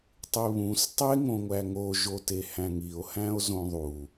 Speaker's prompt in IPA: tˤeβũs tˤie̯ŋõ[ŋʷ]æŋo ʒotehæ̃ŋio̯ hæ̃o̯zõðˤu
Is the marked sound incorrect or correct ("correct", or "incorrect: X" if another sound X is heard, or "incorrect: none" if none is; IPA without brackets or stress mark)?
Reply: correct